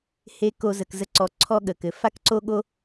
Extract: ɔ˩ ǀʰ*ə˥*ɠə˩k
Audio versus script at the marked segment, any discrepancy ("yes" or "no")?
yes